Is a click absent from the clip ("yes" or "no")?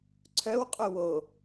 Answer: no